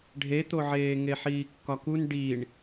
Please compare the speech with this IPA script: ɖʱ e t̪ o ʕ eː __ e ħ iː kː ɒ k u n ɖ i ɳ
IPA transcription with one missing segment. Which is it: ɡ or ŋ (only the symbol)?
ŋ